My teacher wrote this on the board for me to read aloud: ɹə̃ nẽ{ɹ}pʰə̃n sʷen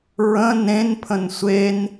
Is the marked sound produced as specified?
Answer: no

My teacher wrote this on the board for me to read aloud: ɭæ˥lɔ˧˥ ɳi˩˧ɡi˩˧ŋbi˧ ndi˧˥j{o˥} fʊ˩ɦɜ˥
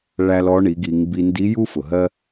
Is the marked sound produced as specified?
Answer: no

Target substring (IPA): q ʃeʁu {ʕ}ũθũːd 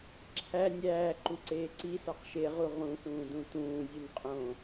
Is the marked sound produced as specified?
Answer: no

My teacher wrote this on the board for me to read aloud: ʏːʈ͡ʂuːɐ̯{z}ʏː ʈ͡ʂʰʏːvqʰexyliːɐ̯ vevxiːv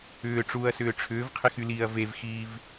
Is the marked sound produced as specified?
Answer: no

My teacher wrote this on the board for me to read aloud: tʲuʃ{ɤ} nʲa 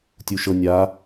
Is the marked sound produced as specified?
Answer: yes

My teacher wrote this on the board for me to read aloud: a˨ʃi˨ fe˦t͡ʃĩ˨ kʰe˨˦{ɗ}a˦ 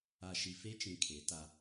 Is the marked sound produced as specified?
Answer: no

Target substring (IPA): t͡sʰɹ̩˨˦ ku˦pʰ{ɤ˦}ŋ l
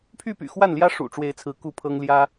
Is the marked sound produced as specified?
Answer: yes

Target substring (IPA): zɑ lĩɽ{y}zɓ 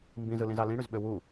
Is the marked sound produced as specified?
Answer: yes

